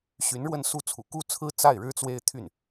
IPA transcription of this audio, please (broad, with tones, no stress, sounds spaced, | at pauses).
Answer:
ɕ y˧˥ n ɻ w ə˥˧ n s u˥˩ t͡sʰ ṵ˨˩ k u˥˩ t͡sʰ ɹ̩˥ t͡s a˥˩ ɪ̯ ɻ ɻ̩˥ t͡s w e˥ ɪ̯ t̪ʰ y˥˩ n